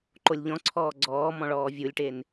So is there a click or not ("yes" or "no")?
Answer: yes